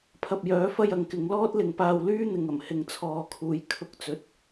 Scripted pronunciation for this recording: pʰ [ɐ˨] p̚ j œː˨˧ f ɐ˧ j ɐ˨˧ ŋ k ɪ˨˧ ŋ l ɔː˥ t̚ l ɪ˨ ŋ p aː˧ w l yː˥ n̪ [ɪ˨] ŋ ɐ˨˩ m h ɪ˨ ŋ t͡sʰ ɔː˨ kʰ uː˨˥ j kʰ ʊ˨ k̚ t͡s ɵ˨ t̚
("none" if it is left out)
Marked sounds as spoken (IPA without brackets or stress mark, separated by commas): ɐ˨, ɪ˨